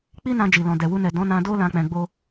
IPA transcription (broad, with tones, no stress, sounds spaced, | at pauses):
k͡p i˦ n ã˧ d͡ʒ i˨ l ɔ̃˨ d ɛ˨ w u˧ n ɛ˨ d ɔ̃˨˦ n ã˧ d o˦ l ã˦ k͡p ɛ̃˧ ɡ͡b o˦